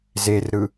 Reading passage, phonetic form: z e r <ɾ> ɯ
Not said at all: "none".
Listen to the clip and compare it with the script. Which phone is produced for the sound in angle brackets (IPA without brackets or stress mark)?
ɾ